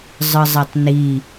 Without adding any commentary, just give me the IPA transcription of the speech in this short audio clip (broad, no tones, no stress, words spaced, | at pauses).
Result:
zˤɯzˤetˤni